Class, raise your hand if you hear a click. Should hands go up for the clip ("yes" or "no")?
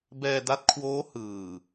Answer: no